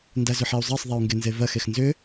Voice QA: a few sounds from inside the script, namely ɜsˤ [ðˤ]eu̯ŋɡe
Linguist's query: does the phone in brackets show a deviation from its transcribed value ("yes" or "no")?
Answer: no